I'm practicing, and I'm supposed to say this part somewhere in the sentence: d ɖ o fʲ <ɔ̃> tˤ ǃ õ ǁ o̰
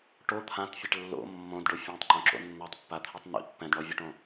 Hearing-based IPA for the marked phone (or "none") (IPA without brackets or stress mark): ɔ̃